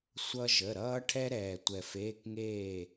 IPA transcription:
sʷ ʌ˧ ʒ ə˩˧˩ ɾ ʌː˧ ʈʰ ɛ˧ ɾ ɛː˩ tʷ ɛ˩ f eː˩˧˩ k ŋ eː˧˩

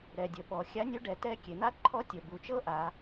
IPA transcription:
ɾ ɛ˨˩ dʲ ə˨˩ ɓ ɔ˩˧ xʲ a˨˥ nʲ u˨˥ ɖ ɛ˩˧ t ɛ˦˨ kʲ e˩˧ n̪ a˦˥ ǃʰ ɔ˦˥ tʲ ə˨˩ b u˩˧ t͡ʃ ɤ˦˥ ʔ a˩˧

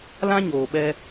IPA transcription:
l ã˦ ɲ oː˨ ɓ ɛ˧

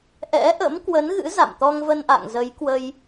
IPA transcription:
ʔ ɛ̰˧˥ ʔ ə̰˧˥ m k w ə˨˦ n ɣ ɨ̰˧˥ z a̰˧˨ m t̪ ɔ˧ ŋ v ə˧ n ʔ a̰˧˨ ŋ z ə˨˦ j k w ə˧ j

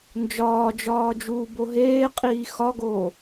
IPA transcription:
n d͡ʒ ɒː d͡ʒ ɒː d͡ʒ uː b o ɦ eː qʼ iː x ɒ ɡ oː

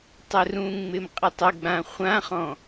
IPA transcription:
tˤ ɪ r ũ ŋ͡m ɪ m qʼ ɪ tˤ ɪ ɡ͡b ã χʷ ã χ ɔ̃

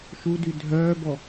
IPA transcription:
ʃ u d y dʱ œː b ɔ

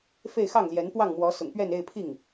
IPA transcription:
f e˥˧ ɪ̯ x ɑ˥˩ ŋ l j ɛ˧˥ n p w ɑ˥˩ ŋ m w ɔ˧˥ s ʊ̰˨˩ ŋ p ɥ ɛ˥˧ n e˥˧ ɪ̯ pʰ i˥˩ ŋ

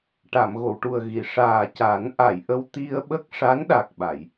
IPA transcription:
ʈ a˨˩˨ m ɣ o˨˩˨ w ʈ u˨˩ ə̯ ɣ i˨˩˨ ʂ aː˨˩ c a˨˩˦ n ʔ a˨˩˨ j ʔ ə˧ w t̪ i˧ ə̯ ɓ ə˦˥ k̚ ʂ a˧˥ n ɗ a˨˩ k̚ ɓ a˨˩˨ j

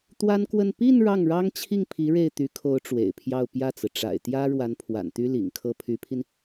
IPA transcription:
t̪ w a˥ n k w ə˥˧ n p i˥˧ n ɻ ɑ˥˩ ŋ ɻ ɑ˥ ŋ t͡ɕʰ i˥˩ ŋ pʰ i˧˥ ɻ e˥˩ ɪ̯ t̪ y˧˥ kʰ o˧˥ ʊ̯ ʈ͡ʂ w ḛ˨˩ ɪ̯ pʰ j ɑ˥˧ ʊ̯ p j ä˥˩ t͡s ɹ̩˩ ʈ͡ʂ a̰˨˩ ɪ̯ t̪ j ä˥ ɻ w a˧˥ n pʰ w a̰˨˩ n t̪ y˥ l ḭ˨˩ ŋ kʰ ɤ˥ pʰ y˧˥ pʰ i˧ n

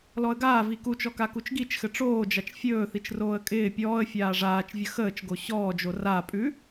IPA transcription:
l ɔ ə̯ ɡ aː v i k u t͡ʃ ɔ k a k u t͡ʃ ɡ i t͡ʃ x ɘ ʈ͡ʂ oː d͡ʒ a t͡ʃ fʲ ɵː θ i t͡ʃ r oː ə̯ kʼ ɪː pʲ ɔː ə̯ fʲ aː ʐ aː t͡ʃ vʲ ə x əː t͡ʃ ɡ o ɕ ɔː d͡ʒ o r a pʼ ʉ

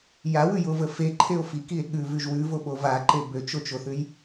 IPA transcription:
j a w ʉ j o v ə f e ǃʰ e o̯ f i k i e̯ ɠ ʉ v ʉ ʒ w ʉ v o ɓ o v a ǃ e b ø t͡ʃ o t͡ʃ o θ ʉ j

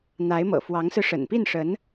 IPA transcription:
n̪ a˧˥ ɪ̯ m ɤ̰˨˩ f w ɑ˧˥ ŋ s ɹ̩˧ ʂ ə̰˨˩ n p i˥˩ n ʂ ə˧˥ n

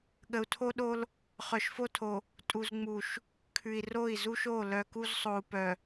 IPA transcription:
ɠ ə˨ u̯ tʰ o˦ ɗ o˦ l | χ œ˨ ʃ f o˦ tʰ o˨ | tʼ u˨ z ŋ͡m u˨ ʃ | kʰ ʉ˨ i̯ r o˦˨ i̯ z u˦ ʃ o˦˨ l œ˨ k u˦ z sˤ o˨ u̯ p œ˨

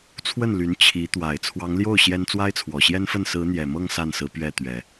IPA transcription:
t͡sʰ w ə˥˩ n l y˧˥ n t͡ɕʰ i˧˥ t̪ w a˨˩ ɪ̯ t͡sʰ w ɑ˧˥ ŋ l j o˥˩ ʊ̯ ɕ j ɛ˥ n t͡s w a˥ ɪ̯ t͡sʰ w ɔ˨˩ ɕ j ɛ˥ n f ə˥˩ n s ɹ̩˧˥ n̪ j ɛ˨˩ m ɤ˥˧ ŋ s a˥˩ n s ɹ̩˧˥ p ɥ ɛ˥˩ t̪ ɥ ɛ˨˩˦

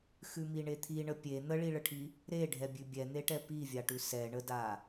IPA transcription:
x ʉ m i ɳ e t̪ʰ i ɳ ə pʲ e n̪ ə ɭ i ɭ ə ʈʰ i | ɾ e ɖʱ ɛ bʲ ʉ bʲ ɛ n̪ e ʈ ɛ p i vʲ a ʈ ʉ s ɛ ɳ ə d a

